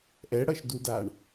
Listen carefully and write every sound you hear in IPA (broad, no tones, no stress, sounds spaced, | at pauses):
ʔ ɛ ɽ ʌ ʃ d u d a ɳ